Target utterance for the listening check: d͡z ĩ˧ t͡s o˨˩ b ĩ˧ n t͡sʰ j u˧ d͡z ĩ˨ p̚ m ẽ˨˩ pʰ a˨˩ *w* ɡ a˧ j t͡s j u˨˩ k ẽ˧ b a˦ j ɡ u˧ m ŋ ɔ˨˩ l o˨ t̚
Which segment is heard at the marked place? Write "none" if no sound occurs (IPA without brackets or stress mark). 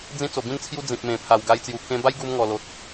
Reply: w